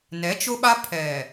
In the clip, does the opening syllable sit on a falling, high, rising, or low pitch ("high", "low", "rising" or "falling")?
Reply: rising